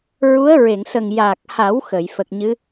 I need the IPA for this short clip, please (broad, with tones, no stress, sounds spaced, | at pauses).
ɹ u˧˥ ə̯ ɹ e˨˩˨ ŋ s ə˨˩ ŋ j aː˨˩ k̚ h a˨˩˦ w x ə˨˩˨ j f ə˨˩ k̚ ɲ ɨ˧˥